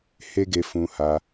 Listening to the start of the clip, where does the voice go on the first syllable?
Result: high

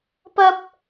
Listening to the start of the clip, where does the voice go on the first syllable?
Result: high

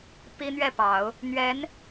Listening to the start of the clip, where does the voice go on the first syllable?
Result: high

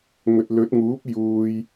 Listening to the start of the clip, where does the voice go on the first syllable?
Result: low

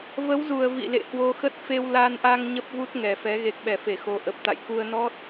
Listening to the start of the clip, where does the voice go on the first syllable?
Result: rising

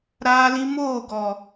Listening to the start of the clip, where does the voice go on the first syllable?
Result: high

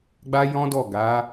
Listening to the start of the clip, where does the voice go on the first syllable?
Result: high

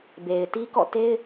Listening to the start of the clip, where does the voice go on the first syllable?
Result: low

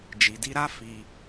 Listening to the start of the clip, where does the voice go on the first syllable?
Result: low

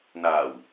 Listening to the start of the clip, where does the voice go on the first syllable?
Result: low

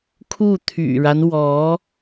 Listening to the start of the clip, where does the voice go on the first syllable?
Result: falling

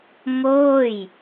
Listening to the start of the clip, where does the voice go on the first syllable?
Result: falling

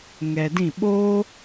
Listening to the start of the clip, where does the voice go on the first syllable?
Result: low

